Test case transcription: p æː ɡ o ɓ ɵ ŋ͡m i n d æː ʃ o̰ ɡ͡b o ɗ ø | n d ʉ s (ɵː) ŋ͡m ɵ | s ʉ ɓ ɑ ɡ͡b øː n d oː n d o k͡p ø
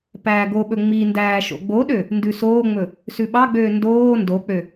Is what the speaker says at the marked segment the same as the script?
no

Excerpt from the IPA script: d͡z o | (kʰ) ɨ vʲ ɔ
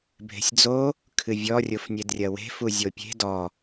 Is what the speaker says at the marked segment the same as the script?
yes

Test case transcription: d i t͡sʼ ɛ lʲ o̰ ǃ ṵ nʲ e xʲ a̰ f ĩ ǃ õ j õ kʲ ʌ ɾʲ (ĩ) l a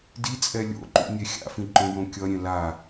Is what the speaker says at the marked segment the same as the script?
no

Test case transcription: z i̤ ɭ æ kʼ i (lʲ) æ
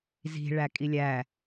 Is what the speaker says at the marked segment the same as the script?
yes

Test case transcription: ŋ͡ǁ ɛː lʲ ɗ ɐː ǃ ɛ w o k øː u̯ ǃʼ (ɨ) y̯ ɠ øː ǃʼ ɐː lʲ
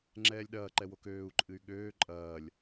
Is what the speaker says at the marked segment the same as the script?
yes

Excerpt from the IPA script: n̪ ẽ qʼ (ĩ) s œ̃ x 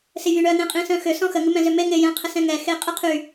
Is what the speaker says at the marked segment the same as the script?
yes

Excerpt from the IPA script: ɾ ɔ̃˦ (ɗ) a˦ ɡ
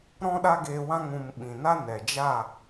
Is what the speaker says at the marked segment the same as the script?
yes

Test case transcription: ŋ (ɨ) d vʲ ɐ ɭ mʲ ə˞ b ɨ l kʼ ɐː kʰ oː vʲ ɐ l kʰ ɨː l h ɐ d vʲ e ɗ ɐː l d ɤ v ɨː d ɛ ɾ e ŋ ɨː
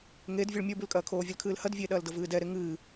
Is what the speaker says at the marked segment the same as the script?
no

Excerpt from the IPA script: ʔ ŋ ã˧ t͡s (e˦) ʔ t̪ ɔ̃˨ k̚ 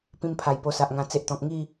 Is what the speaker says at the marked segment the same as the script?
yes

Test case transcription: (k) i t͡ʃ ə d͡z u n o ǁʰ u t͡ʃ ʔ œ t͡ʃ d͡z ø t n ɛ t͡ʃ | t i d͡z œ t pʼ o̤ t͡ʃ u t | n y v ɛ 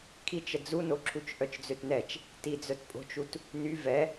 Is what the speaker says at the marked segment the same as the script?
no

